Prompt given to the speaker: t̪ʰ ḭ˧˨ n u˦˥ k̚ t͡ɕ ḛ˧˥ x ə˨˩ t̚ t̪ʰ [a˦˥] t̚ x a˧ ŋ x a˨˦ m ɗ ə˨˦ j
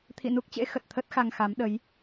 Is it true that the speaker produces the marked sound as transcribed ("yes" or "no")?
no